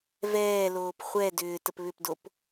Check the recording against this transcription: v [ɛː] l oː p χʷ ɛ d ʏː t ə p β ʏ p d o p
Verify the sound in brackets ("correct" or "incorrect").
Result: correct